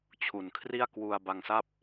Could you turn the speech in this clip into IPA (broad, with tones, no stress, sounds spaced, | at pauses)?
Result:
t͡ɕʰ u˨˩ n kʰ r i˥˩ a̯ k w u˧ a̯ b a˧ ŋ s a˥˩ p̚